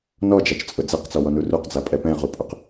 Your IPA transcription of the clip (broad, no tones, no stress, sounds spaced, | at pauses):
n ɔ d͡ʒ a t͡ʃ t͡sʼ ʊ d͡z ɛ q t͡s ɔ w ɔ n u r u q d͡z a pʼ ɛ p ɛ̃ ʁ u pʼ ʊ q